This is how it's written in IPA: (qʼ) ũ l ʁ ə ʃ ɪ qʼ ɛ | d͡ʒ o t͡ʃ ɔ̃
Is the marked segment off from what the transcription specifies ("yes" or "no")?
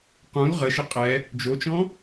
yes